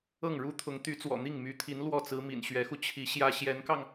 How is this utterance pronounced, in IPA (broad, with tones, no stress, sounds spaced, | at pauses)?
ɤ˥˩ ŋ ɻ u˥ t̪ʰ ʊ˧˥ ŋ t̪ y˧˥ t͡s w ɔ̰˨˩ n̪ i˥˩ ŋ m y˧˥ t̪ʰ i˧˥ n l w ɔ˥˩ t͡s ɹ̩˧˥ m ḭ˨˩ n ɕ ɥ ɛ˧˥ x u˧ t͡ɕʰ i˧˥ ɕ j ä˥ ɕ j ɛ˧˥ n k ɑ˧ ŋ